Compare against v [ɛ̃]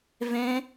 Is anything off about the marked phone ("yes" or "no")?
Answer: no